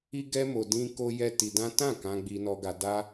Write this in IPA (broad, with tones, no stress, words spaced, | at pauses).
i˦ɡɛ˦mo˧ dĩ˦ ko˦jɛ˦ ti˧dã˦ tã˦˨ kã˧ɡ͡bi˧nɔ˧ɡa˧ da˦